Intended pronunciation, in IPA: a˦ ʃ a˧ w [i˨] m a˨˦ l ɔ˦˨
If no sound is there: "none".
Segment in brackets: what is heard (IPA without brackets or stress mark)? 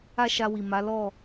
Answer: i˨